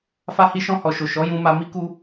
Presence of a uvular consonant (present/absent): absent